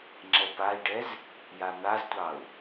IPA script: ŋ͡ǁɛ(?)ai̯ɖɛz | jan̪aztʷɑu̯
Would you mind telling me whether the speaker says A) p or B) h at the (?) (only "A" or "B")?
A